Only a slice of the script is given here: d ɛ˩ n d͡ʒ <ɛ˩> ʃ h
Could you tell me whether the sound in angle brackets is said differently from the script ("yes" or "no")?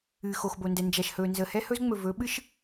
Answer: yes